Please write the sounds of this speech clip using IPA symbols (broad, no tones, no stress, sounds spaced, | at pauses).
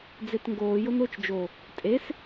d͡z e t ŋ ɡ oː j ʊ n ʊː t͡ʃ d͡ʒ o | tʼ e s